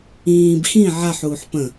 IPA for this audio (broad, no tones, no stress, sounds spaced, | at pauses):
ĩː b x ĩ ʕ a ħ uː ħ p ə̃